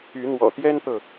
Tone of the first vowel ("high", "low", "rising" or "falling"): rising